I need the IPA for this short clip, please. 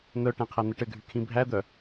n̪ œ ʈ æ̃ qʰ æ n̪ ɘ ʈ ɘ ɡʱ y kʰ ĩ bʱ æ d̪ œ

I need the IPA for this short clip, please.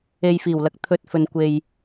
e˨ j f iː˨˩ w l ɐ˨˥ k̚ t̪ʰ ɵ˨ t̚ f ɵ˨ n kʷ e˨ j

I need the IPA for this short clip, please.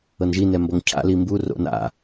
ɤ n ʒ i n ɛ m b ɔ ŋ cʰ a̰ l i m b u r o̰ n a̰

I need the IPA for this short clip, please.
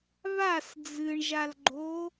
β a s d͡z ɨ ɳ ʒ a l ɡ͡ǃ o

